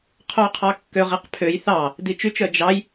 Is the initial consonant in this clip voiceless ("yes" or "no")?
yes